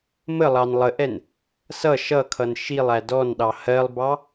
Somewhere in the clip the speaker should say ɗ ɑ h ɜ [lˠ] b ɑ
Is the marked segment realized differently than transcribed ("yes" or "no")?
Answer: no